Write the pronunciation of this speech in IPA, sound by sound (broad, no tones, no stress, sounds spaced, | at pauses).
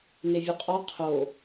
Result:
n e vʲ u qʼ ɒ qʰ o